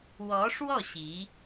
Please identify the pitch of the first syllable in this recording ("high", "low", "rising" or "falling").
rising